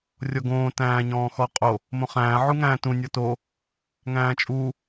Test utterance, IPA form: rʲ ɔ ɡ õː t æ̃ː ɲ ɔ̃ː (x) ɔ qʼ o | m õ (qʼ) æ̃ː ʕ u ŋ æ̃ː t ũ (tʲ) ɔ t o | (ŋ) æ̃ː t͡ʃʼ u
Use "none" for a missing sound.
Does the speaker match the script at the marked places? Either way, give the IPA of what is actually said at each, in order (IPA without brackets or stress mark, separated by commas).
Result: x, χ, nʲ, ŋ